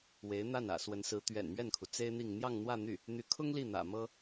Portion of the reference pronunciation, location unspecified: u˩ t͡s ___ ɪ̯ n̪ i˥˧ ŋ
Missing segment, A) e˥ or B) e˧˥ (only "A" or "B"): A